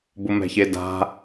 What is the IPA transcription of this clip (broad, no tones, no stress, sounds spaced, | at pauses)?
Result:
b ʊ m ɛ̤ ç e d a̤